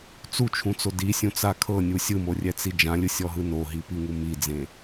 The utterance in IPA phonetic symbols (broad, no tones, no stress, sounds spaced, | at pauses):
t͡s u t͡ʃʰ ũ t͡s o d i sʲ ũ t͡s a kʰ ɤ nʲ u sʲ ɯ m o rʲ ɛ t͡s i d͡ʒ ã lʲ ɯ sʲ ɔ ɦ ɯ n o ɦ i p i ŋ u m i d͡z ẽ